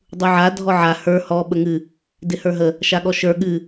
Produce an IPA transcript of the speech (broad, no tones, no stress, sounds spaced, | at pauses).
dˤ u ʕ a dʱ ɔ ʕ a h ə˞ h ɔ ɓ ə ŋ ɨ | d ɪ h ə˞ ɦ ə | ʃ a ɠ ɔ ʃ ə˞ ɠ ɨ